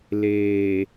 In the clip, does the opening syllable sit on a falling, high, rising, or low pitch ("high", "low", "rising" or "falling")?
low